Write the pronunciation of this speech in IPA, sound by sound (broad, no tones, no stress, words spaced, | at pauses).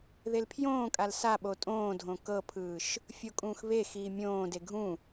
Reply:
ðelpʰjõːkʼal saɓo tʼõːdʱõ kɤpʰɯːʃ | fʲokʼũːxβexiː mʲõːde ɡʱũ